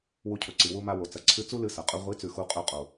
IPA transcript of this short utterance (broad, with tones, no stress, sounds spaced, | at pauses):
w u˧ cʰ ɵ˨ ǀ i˨ w u˧ m a˧ w o˨ t͡s ɐ˨ ǀʰ ɨ˧ t͡s u˦ l ɨ˧ s ɐ˨ qʼ ɵ˧ ʁʷ i˨˦ t͡s ʉ˨ x u˧ qʼ ɵ˧ qʼ o˨